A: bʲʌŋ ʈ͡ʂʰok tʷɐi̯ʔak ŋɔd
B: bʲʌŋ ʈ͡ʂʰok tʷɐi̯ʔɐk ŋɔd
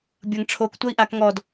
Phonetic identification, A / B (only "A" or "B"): A